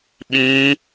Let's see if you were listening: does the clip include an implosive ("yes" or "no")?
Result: yes